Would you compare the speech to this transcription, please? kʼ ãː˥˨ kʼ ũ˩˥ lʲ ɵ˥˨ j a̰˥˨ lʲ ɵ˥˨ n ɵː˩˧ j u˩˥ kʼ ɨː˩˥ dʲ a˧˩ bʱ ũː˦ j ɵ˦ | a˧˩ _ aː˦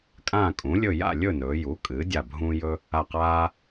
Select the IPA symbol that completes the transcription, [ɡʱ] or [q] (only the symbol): q